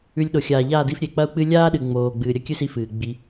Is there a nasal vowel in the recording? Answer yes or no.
no